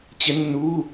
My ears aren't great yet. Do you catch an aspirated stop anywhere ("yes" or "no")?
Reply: no